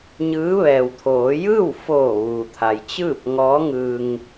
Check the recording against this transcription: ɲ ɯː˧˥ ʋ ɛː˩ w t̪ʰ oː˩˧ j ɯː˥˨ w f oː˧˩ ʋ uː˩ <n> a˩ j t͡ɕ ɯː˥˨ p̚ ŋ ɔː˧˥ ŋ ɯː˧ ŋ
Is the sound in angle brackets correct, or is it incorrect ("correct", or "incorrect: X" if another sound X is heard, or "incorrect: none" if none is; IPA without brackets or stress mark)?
incorrect: t̪ʰ